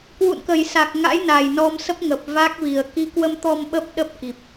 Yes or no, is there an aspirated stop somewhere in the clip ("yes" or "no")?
no